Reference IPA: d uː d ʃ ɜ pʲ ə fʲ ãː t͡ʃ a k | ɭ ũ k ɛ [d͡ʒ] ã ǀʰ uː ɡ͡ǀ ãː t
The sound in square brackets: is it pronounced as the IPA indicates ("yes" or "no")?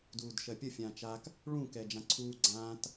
yes